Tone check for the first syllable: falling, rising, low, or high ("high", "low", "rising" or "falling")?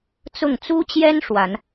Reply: falling